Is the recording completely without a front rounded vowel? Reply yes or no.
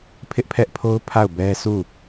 yes